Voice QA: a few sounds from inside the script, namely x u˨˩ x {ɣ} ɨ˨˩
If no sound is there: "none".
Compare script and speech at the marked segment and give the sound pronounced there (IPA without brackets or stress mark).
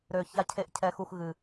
ɣ